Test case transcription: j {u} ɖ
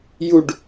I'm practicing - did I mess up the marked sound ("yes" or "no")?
no